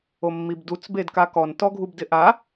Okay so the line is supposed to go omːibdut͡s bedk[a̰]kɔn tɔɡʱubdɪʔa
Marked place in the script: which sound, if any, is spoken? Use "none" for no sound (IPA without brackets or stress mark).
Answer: a